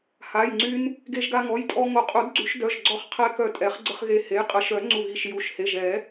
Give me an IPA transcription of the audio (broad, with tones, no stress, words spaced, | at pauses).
ha˩˧˩jŋ͡ǀy˧n | ɡe˧ʒɡa˧ŋɔ˩˧˩jtʼɔ˧ ŋo˨˩˦qʼu˨˩˦dɡ͡ǀy˨˩˦ʃ dœ˩˧˩ʒɡ͡ǀɔ˧χqʰɛ˧ kœ˧˩tʼɛ˨˩˦χ ɡ͡ǀə˧χɣe˧˩he˩˧˩j qʼə˨˩˦ʃœ˨˩˦ ŋ͡ǀu˧˩ɣi˧˩ʃju˩˧˩ʃhe˩˧˩ʒ ɛ˨˩˦